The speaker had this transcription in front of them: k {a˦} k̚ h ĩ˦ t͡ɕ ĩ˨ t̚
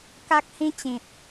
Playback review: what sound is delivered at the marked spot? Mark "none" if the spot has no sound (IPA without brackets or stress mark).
a˦